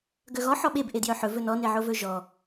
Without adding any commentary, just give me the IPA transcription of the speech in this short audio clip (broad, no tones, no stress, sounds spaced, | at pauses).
ɡ œ ɣ ɔ ħ ɔ ɓ e b ʔ e d j œ ħ ɵ v ɵ n ɔ n e ʕ o v ɵ ʒ ɔ